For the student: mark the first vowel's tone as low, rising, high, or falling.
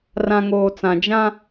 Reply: low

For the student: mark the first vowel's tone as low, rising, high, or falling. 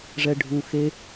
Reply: low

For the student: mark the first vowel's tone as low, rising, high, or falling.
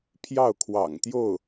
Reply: falling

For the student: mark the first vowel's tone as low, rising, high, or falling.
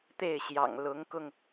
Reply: falling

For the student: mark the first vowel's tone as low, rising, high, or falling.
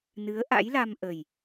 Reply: rising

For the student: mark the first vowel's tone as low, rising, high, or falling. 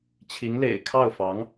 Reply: rising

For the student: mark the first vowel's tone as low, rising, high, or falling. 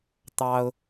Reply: high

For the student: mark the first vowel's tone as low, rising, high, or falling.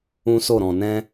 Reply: high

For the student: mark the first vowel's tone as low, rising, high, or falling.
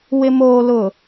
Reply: low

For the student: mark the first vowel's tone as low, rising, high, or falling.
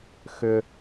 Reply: high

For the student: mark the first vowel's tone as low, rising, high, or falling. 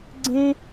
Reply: high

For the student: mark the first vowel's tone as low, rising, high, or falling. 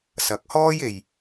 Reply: rising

